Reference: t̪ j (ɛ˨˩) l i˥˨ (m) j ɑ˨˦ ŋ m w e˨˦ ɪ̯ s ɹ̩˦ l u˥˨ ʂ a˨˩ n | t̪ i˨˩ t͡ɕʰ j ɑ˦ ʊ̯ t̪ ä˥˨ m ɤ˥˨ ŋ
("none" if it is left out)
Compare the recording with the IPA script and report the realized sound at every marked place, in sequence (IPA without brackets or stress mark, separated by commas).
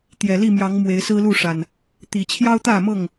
ɛ˨˩, m